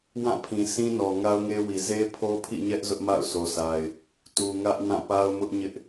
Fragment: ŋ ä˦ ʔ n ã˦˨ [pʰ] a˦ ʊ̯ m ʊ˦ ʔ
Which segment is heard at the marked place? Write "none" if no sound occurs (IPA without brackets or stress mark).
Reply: p